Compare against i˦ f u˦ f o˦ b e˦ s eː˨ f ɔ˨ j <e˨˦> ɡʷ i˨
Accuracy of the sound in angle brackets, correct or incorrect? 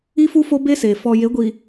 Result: correct